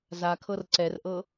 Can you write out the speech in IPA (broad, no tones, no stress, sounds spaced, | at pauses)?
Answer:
z a kʰ ɤ r ǀ ɛ r ʔ ɤ